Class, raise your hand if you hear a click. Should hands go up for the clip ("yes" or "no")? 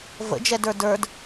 no